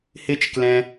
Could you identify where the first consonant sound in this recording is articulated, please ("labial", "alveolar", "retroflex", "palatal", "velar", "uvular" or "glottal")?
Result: glottal